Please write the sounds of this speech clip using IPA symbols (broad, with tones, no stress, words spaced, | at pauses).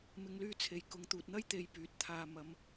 mɪ˨˧ŋlyː˧t͡sʰe˨j kʊ˨ŋt̪uː˨t̚n̪ɐ˥j t̪e˧jpyː˨t̚ t̪ʰaː˨ mɐ˨˧m